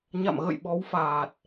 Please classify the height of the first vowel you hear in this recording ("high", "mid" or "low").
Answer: low